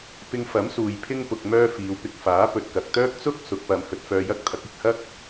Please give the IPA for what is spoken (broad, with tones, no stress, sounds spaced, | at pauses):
p ɪ˧ ŋ f ɐ˨˥ m s uː˨ j pʰ ɪ˥ ŋ p ʊ˧ k̚ m œː˥ f iː˨˧ w p ɪ˧ k̚ f aː˨˥ p ɵ˨ t̚ k ɐ˨ k̚ t̪ œː˥ k̚ t͡s ʊ˥ k̚ s ʊ˨˥ k̚ p ɐ˨˧ m h ɵ˧ t̚ f œː˧ j ɐ˥ k̚ t̪ʰ ɐ˨˥ k̚ ɪ˨ k̚ h ɐ˥ k̚